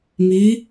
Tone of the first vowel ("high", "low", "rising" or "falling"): rising